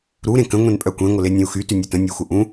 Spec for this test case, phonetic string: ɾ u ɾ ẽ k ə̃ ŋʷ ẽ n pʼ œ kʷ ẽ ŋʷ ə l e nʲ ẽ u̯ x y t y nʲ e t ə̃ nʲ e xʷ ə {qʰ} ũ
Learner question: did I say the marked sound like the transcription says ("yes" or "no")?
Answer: no